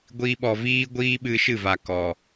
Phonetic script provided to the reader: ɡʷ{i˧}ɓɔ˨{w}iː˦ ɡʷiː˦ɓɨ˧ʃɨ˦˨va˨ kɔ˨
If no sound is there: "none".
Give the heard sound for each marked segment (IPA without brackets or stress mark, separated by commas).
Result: i˧, v